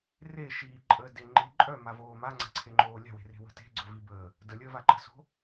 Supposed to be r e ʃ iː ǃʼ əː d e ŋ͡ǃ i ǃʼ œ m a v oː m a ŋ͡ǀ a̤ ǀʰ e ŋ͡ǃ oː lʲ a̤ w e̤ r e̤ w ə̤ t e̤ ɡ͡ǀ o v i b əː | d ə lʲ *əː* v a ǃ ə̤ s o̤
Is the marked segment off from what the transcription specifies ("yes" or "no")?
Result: no